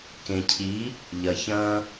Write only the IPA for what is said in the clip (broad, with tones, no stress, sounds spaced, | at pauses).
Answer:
k ẽ˨ cʰ i˨˦ | ʎ ɐ˨ ç ɐ̃˧